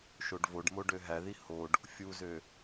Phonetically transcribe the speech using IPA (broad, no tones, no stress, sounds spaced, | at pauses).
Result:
ʃ o ɖ v o ɖ m o ɖ ø ɦ æ ð i h o ɖ | fʲ u z ø